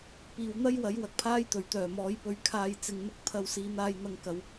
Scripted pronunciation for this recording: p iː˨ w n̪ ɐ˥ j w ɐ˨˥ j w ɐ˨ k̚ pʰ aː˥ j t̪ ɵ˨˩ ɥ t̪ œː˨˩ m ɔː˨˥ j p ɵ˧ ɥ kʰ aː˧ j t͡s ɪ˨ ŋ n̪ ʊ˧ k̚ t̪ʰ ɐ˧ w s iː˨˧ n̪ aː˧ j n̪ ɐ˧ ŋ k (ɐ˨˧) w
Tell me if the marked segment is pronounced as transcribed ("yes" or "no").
yes